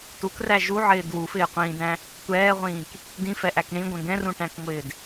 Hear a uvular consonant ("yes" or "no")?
yes